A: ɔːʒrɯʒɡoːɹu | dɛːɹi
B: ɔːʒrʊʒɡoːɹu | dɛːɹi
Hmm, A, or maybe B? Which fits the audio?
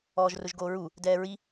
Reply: B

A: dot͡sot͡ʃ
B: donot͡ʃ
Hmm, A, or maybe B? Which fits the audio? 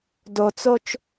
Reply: A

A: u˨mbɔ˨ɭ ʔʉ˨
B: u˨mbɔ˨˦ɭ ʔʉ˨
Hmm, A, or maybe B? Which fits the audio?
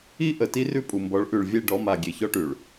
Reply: B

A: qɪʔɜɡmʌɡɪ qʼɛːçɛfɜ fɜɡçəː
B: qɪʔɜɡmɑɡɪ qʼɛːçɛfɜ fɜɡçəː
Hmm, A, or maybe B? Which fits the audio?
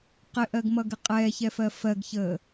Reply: A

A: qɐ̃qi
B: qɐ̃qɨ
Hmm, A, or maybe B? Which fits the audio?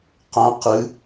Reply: B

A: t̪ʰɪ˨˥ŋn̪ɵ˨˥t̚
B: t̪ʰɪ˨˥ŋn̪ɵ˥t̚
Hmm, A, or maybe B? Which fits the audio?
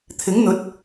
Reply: A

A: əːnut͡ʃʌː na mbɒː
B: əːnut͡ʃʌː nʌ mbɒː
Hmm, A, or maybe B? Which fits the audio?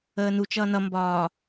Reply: B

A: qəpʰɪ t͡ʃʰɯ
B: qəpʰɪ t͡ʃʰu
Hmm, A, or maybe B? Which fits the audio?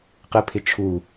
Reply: B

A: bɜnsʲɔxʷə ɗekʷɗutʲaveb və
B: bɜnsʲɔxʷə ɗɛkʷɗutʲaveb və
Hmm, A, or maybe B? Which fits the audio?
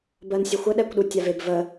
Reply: B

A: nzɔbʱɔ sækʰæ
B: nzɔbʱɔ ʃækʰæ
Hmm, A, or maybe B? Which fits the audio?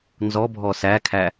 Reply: A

